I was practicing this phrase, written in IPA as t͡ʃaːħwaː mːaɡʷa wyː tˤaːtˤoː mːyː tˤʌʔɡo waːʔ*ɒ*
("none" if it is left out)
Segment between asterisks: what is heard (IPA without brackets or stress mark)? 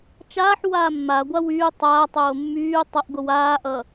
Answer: ʌ